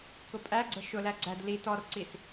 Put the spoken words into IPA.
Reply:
k ʊ pʼ æ ɡ͡ǀ ə ʃ ʊ l æ ɡ͡ǀ æ d l i t ɔ r ǀ i s

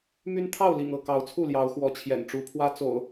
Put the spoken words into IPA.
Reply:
m y˦ n t̪ʰ ɑ˥˨ ʊ̯ l ḭ˨˩ ŋ ɤ˥˨ k ɑ˨˦ ʊ̯ t͡sʰ u˥˨ l j ɑ˨˦ ʊ̯ x w ɔ˨˦ t͡ɕʰ j ɛ̰˨˩ n ʈ͡ʂ u˨˦ pʰ w ä˦ t͡s o̰˨˩ ʊ̯

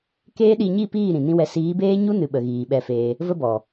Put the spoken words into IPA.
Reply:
k eː˦ ɗ i˧ ɲ i˦˨ p iː˦˨ ɾ ĩ˨ n ĩ˦ w ɛ˧ s iː˨˦ b eː˦ ɲ u˦ n ɨ˨ ɓ ə˨ ɣ iː˨ ɓ ɛ˧ f eː˧ | v ə˧ b ɔ˨

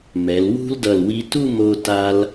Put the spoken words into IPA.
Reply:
m ɛ˩˧ l w ṳ˥ l d ʌ˧˩ l w i˧ t u˥˧ m o˥ t a˧ l

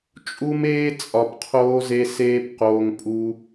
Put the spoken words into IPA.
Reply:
t͡ʃʼ u˦ m eː˦ t͡sʼ ɒ˧ p qʰ oː˦ z e˦ s eː˦ p q oː˧ ŋ pʼ u˦

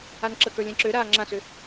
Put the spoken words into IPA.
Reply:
a n ǁ ə k ə˞ lʲ ɛ̃ ǁ ø ɾ aː ŋ͡ǁ ã s ø

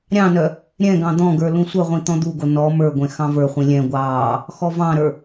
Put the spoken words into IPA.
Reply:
ɾʲ ɑ̃ n œ | ɾʲ ɛ̃ ɡ ɑ̃ d̪ ɔ̃ ɡ ə˞ l ũ sʷ œ ʁʷ ĩ t̪ ɔ̃ d̪ u ɡ o n ɔ m ə˞ ɡʷ ɛ̃ x ɑ̃ v ə˞ χʷ ĩ lʲ ɛ̃ ɡʷ ɑː | x ɔ v ɑ̃ ɾ ə˞

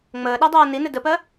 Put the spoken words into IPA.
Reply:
ŋ͡m əː ɗ a dˤ aː n i n ɘ d ə p ɜ

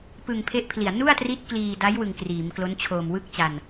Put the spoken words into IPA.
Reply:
p ɯ˧ ŋ pʰ e˦˥ ʔ pʰ l i˨˩ a̯ n u˥˩ a̯ t r i˦˥ t̚ k l iː˧ d a˦˥ j w ɯ˧ ŋ k r iː˩˦ m k l o˦˥ n t͡ɕʰ oː˨˩ m w ɯ˥˩ k̚ t͡ɕ a˧ n

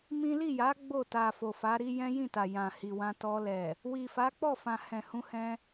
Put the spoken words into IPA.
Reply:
m ĩ˦ l i˦˨ j a˨˦ ɡ͡b o˦˨ t a˨ f o˨ f a˨˦ ɾ i˦ j ɛ̃˦ j ĩ˦˨ t a˨ j ã˨ h i˨ w ã˧ t ɔ˧ l ɛ˨ | w i˨ f a˨˦ k͡p ɔ˦˨ f ã˨ h ɛ̃˨ h ũ˧ h ɛ̃˧

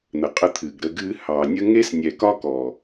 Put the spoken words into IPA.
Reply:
n̪ ə˨ qʼ ə˧ t̪ʰ ɨ˨ ɡ ɾ ə˧ ɡ ɨ˧ h ɑ˨ nʲ ə˦ ŋ e˦ s nʲ ɛ˨ k ɒ˦ k ɔ˨

